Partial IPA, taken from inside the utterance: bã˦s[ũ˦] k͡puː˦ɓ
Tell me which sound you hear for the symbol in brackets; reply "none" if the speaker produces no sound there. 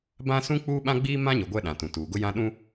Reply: ũ˦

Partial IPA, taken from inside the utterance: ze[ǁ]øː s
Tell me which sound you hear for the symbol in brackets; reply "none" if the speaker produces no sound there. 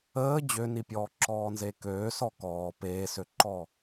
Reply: k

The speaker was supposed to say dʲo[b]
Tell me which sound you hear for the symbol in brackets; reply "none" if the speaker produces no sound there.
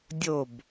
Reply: b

